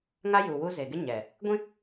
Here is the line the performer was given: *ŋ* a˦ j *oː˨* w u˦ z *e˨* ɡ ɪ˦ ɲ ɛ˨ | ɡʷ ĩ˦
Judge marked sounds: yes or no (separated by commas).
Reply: yes, no, yes